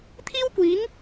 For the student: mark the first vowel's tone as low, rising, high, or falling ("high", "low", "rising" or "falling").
high